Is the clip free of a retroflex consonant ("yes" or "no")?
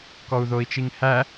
yes